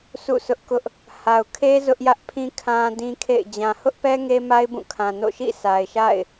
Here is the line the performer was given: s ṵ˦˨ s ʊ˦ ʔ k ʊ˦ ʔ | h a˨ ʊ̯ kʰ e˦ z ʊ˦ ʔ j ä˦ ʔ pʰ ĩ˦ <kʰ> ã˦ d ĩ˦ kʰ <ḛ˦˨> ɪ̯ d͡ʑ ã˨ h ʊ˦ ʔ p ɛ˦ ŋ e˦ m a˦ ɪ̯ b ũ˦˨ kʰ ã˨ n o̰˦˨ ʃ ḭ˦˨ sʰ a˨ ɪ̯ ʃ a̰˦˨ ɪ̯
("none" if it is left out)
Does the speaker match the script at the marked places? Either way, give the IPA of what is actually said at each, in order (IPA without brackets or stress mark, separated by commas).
kʰ, ḛ˦˨